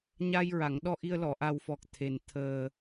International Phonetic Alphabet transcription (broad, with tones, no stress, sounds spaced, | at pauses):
ɲ a˧ j ɹ a˨˩˨ ŋ ɗ ɔ˧ ʔ i˧ ə̯ l ɔ˨˩˨ ʔ a˨˩ w f ɔ˨˩ k̚ t̪ʰ e˨˩ n t̪ʰ əː˨˩